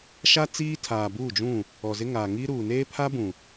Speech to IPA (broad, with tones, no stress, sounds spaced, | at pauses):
ʃ a˦ t͡s iː˦ tʰ aː˨ b uː˦˨ d͡ʒ ũ˦˨ | ɔ˨ z ɪ˦ ŋ aː˨ ŋ i˦ ɾ uː˨ n eː˦ pʰ a˦ b ũ˨